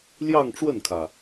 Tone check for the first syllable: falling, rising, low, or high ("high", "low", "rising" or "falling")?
falling